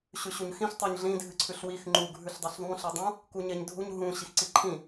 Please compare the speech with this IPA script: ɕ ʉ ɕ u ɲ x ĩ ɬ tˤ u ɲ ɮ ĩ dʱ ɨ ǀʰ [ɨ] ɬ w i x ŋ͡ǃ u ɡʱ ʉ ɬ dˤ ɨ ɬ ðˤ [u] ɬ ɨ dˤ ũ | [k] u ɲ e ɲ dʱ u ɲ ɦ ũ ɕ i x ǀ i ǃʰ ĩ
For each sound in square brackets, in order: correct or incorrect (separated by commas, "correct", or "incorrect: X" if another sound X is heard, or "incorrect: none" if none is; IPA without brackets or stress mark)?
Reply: incorrect: ʉ, incorrect: ũ, correct